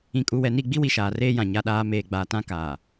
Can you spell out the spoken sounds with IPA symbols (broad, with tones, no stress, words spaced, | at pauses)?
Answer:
ĩ˨kʼu˨ wɛ˨ni˦˨ɡ͡bi˦wi˨ ʃaː˨reː˦jã˨ ɲa˨ɗaː˨ meː˨ɡ͡baː˨ tã˦kaː˨